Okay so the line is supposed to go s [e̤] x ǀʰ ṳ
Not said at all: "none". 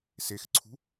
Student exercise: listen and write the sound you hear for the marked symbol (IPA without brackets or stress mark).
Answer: e